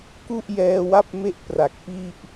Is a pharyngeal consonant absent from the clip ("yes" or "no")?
yes